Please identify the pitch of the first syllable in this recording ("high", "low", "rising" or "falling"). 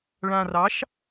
low